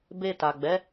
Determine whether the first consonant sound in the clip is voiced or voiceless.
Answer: voiced